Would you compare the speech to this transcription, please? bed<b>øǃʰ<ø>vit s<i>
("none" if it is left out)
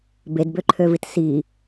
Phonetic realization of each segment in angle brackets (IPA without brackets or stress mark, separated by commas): b, ø, i